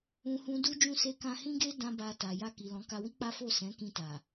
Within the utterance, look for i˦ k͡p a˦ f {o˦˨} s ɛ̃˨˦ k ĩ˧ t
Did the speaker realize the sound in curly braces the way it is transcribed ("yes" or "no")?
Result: yes